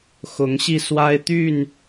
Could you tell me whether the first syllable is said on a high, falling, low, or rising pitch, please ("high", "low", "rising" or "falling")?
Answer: rising